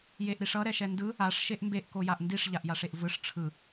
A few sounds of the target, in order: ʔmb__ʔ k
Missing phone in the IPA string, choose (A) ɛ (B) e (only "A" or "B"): B